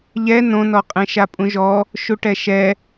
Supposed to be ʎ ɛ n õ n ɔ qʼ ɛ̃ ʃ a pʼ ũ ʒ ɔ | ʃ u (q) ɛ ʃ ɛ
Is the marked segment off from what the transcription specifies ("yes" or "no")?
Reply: yes